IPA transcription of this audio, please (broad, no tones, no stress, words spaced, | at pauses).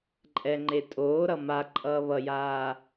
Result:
ǃʼɛŋ͡ǃe tʼoːɾʌ ma ǃʼʌːβʌjaː